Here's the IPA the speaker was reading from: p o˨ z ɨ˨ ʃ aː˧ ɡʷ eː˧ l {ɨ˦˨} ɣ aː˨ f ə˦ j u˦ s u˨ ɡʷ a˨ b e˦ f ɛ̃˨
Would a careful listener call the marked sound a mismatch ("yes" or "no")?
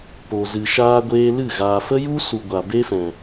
no